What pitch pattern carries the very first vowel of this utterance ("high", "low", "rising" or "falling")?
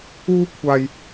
high